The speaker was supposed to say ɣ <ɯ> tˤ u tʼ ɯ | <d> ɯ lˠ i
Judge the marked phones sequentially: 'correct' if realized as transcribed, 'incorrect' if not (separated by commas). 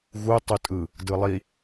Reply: incorrect, correct